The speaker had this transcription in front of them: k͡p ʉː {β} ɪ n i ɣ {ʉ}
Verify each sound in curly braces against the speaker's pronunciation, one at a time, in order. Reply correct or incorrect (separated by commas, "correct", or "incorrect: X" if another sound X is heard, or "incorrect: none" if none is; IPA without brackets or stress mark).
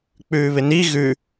correct, correct